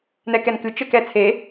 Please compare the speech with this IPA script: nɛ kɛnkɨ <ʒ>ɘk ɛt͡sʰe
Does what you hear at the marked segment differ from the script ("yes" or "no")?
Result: yes